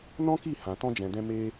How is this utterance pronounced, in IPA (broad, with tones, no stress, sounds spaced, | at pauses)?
n ɔ̃˦ k i˦˨ h ã˨ t ɔ̃˧ d͡ʒ ɛ̃˨ d ɛ̃˧ m e˧